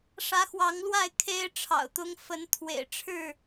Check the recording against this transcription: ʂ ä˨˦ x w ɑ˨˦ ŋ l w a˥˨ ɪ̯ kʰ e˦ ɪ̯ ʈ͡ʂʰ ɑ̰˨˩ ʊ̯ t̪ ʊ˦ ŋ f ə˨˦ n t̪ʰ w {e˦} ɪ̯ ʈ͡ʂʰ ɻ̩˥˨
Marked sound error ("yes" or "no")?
yes